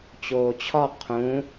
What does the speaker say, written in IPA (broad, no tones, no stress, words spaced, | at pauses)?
t͡ɕoːt͡ɕʰɒ qʰũ